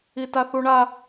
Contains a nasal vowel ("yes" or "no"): no